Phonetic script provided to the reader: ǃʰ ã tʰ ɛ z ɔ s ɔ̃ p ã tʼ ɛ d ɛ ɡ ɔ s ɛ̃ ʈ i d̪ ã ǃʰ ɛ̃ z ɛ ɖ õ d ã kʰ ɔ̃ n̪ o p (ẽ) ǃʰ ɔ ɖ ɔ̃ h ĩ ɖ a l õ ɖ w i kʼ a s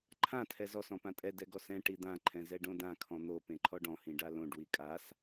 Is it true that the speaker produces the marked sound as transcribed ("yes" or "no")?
yes